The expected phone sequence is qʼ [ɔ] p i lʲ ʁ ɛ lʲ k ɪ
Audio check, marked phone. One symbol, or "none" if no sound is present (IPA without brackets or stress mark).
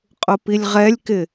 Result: ʊ